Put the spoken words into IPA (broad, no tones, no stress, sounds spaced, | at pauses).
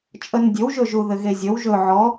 t͡ʃʼ ə n dʲ ɵ w ʒ ɵ ʒ u ð ɘ ɣ e zʲ ə w ʒ ɵ ʕ ɔ